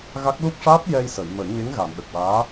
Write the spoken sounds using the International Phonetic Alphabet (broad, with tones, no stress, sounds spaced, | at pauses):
ɣ a˦˥ k̚ l u˦˥ k̚ ʂ aː˦˥ p̚ j ɛ˧ j s ə˨˩˨ j m ə˨˩˦ j ɲ e˧˥ ŋ ɣ a˨˩˨ m ɗ ə˨˩ k̚ w aː˧˥